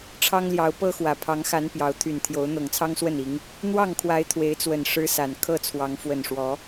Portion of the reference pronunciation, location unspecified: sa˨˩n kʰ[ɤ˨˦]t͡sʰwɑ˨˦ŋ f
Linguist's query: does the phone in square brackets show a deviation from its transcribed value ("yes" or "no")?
yes